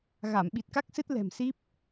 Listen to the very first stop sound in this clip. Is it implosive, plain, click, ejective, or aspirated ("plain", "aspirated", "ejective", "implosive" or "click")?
implosive